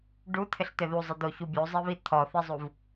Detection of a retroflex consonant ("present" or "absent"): present